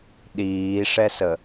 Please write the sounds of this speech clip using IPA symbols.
ɗ iː ʂ ɛ s ə

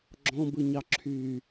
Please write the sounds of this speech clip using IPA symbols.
ɡ͡ǁ ɔ̃ b ɯ ɲ ɑ ǁʰ yː

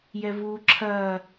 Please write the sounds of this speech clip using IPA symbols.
j ɛ v uː ǁʰ ɐː

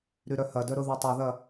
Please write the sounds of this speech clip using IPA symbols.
ɾ y ɾ œ h ɐ d œ ɾ ʊ ð y tˤ ʊ ð ɐ

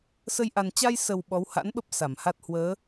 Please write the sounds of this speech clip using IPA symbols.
s ə˧ j ʔ a˨˩ n t͡ɕ a˧ j s ə˨˩ w ɓ ɔ˨˦ w h a̰˧˥ n ɓ ə˦˥ p̚ s a˧˩ m h a˦˥ t̚ h w əː˨˦

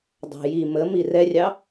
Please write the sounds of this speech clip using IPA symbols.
dˤ ɑ̤ j i m ə m i r ɛ rʲ ɑ

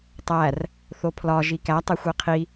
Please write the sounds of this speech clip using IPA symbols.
tˤ æ r | θ o pʰ l ɒ ʒ i k æ tˤ e xʷ i qʰ i

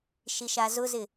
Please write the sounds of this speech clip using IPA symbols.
ʃ i ʃ a z ʊ z ɪ

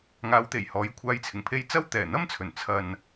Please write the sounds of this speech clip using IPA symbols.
ŋ aː˨˧ w t̪ e˨˩ j h ɔː˨˥ j kʷʰ aː˨˧ j t͡sʰ ɪ˨˩ ŋ pʰ e˧ j t͡s ɐ˥ w t̪ ɛː˨˩ n̪ ɐ˥ m t͡sʰ ɵ˨˩ n t͡sʰ ɐ˨ n

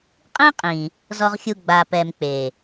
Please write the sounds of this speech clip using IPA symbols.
qʼ ĩ˦ qʼ ĩ˨ | z ɔ˨ ʁ xʲ u˨ ɡ͡b a˨ p ɛ˨ m k͡p e˨

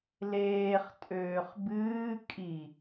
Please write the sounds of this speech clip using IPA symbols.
l eː χ tʼ øː χ b ɨː kʼ i

